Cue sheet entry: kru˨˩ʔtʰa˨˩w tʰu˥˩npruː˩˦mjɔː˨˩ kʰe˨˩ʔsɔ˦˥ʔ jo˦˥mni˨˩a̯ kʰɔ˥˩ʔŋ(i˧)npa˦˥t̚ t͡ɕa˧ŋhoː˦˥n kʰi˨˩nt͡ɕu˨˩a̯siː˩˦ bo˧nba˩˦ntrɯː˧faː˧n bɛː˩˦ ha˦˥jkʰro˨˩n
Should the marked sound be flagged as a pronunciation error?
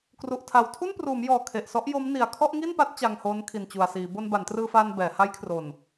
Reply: yes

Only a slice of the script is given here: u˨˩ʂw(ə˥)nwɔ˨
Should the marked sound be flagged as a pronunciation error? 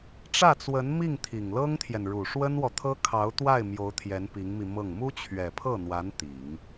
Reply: no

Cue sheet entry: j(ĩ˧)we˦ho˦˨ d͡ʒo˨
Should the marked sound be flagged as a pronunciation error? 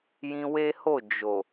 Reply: no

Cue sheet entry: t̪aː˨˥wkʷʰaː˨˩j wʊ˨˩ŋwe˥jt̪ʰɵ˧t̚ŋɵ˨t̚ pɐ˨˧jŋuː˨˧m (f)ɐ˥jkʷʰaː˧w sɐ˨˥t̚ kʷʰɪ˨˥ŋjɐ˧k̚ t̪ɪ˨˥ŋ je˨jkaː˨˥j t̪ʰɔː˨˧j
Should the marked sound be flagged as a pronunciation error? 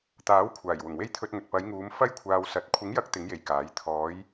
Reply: no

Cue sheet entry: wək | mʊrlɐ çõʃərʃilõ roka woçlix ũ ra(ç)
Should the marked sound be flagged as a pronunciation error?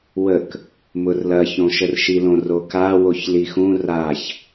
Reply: no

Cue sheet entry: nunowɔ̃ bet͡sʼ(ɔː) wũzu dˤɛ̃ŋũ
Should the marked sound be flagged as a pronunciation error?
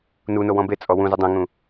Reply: yes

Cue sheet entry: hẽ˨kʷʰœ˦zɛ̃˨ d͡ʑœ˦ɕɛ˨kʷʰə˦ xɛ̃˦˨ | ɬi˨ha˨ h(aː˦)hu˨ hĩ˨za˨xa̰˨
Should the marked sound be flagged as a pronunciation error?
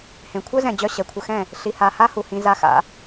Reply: yes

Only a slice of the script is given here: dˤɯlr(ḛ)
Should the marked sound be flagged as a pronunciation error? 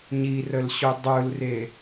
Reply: yes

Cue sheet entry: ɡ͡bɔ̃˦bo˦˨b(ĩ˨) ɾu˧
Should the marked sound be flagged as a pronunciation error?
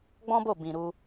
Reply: no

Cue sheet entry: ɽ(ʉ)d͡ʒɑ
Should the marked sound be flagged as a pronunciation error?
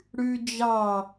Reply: no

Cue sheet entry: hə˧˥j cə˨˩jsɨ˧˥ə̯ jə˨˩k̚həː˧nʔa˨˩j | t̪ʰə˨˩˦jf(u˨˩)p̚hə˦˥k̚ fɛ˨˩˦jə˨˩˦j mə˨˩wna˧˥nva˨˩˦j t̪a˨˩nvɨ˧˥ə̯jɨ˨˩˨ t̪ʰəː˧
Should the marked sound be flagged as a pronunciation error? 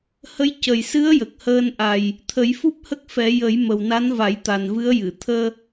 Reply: yes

